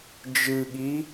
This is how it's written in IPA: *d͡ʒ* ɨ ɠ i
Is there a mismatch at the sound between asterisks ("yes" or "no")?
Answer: no